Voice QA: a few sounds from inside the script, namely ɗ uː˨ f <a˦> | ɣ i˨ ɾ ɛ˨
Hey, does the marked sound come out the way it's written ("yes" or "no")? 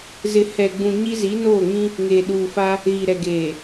yes